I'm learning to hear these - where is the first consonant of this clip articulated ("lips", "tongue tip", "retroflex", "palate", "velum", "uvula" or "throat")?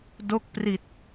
tongue tip